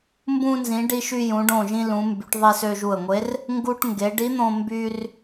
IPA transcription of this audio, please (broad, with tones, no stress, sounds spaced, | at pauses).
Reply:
m b ũ˧ n z ĩ˩˧ ɖ i˧ ʃ y˧ j ũ˩˧ ɖ õ˧˩ ʒ ĩ˧ l ũ˩˧ m b y˩˧ ʈ ðˤ e˧ s ø˧ ʒ u˧˩ ə̯ ŋʷ e˧˥ r | ŋ ɡ u˧ ʈ ŋ ɡ e˩˧ ɖ i˧˥ n̪ õ˧ m b y˧ r